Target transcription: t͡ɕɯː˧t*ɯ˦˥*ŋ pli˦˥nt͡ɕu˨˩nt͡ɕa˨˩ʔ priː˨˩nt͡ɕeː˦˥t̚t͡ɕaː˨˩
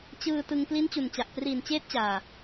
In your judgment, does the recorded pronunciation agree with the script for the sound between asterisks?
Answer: no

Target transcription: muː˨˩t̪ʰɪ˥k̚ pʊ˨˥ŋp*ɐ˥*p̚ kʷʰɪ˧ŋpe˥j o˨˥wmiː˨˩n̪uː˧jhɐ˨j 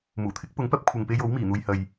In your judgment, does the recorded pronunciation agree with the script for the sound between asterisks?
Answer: yes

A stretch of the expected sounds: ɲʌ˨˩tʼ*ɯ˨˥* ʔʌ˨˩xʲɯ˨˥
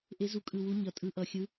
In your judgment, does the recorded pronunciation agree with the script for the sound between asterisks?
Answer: yes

